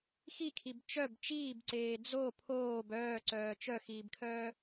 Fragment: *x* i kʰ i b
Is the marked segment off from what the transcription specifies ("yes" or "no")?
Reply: no